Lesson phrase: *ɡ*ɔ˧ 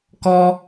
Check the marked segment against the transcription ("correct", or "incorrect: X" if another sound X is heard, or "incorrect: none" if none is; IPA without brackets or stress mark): incorrect: k